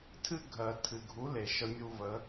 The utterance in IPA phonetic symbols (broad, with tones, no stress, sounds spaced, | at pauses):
tʰ ɨ˦ ɡʱ ɜ˨ tʰ ɨ˨ ɡʱ u˨˦ l e˨ ʃ ə˧ mʲ u˧ v ə˨˦